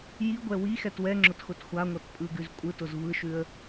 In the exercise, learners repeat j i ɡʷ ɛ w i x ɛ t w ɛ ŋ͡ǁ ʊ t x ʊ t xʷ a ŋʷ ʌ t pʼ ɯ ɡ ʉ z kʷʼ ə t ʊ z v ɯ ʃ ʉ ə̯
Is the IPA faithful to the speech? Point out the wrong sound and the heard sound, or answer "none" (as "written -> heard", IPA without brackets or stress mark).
ə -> ɯ